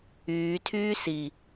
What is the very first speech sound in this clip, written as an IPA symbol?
yː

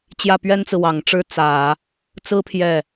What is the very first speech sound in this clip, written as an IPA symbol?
t͡ɕ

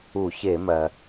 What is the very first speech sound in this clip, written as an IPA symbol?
u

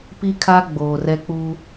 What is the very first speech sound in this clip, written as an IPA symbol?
p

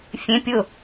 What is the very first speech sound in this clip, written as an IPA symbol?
fʲ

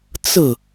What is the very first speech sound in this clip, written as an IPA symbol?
t͡s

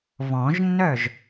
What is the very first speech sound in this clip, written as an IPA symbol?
β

